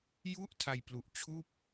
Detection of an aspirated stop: present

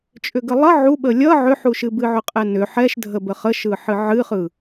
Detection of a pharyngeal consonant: present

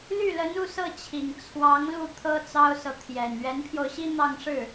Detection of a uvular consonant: absent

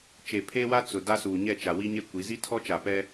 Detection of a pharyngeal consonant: absent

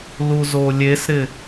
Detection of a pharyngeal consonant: absent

